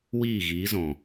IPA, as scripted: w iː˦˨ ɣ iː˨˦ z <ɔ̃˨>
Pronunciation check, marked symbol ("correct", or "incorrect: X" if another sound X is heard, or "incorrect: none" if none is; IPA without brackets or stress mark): correct